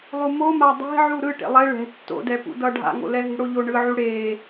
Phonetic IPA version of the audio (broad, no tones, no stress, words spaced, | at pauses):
lˠumoma dˤe̤ʕu ɾɯ ʈḛlˠɛ ɭɛ̤ tːo̰dɛ pṵdʌ ɖʱa̰ŋo̰lɛ ɦi̤ɽoʎo ɳɯʕu ɽe